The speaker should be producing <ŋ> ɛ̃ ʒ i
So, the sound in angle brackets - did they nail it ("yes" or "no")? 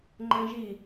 no